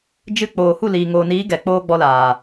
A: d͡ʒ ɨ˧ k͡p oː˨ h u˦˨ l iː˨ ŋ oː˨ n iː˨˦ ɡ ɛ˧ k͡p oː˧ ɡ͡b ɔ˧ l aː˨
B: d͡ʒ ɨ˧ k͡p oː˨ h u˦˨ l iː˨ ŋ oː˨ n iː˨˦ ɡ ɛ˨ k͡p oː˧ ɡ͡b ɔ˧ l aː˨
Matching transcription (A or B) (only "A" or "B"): B